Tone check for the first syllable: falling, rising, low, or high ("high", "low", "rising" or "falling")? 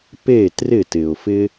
falling